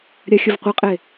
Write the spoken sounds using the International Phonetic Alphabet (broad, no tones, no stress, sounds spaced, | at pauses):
ɾʲ a xʲ ə v qʷ ə qʼ e